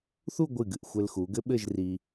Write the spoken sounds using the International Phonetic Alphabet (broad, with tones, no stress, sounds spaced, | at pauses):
θ u˥˧ ɡʷ ɨ˧˩ ɡ ɨ˧˩ ʔ xʷ ɘ˧ l x u˩˧ ɡ ɘ˥ ɓ ɘ˥˧ ʒ r i˧